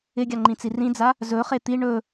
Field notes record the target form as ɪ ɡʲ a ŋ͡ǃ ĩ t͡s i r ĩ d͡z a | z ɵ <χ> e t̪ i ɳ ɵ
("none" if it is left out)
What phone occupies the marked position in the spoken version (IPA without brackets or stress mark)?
χ